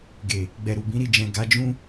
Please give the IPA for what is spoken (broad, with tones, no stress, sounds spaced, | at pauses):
ɡ e˨ | ɡ͡b ɛ˨ ɾ u˨ b ĩ˨˦ ɾ i˦˨ d͡ʒ ɛ̃˨ ɡ a˨˦ d͡ʒ ũ˦